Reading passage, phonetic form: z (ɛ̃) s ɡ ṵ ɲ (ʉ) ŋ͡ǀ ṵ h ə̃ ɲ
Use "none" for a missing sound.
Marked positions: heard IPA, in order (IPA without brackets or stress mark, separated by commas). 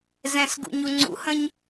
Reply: ɛ̃, u